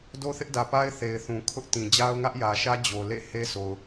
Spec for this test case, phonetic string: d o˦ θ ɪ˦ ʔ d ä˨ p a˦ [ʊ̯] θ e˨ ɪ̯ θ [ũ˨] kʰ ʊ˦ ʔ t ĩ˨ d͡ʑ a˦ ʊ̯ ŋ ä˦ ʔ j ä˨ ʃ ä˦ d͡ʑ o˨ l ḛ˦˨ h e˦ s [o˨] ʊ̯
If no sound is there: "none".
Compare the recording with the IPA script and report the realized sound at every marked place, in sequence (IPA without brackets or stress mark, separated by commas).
ɪ̯, ũ˨, o˨